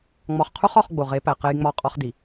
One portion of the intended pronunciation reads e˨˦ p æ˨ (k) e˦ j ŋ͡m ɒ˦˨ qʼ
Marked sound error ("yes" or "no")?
yes